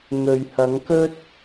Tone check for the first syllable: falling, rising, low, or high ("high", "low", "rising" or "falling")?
low